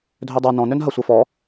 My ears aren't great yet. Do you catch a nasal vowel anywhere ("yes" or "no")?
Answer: yes